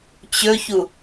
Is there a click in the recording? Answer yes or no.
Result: no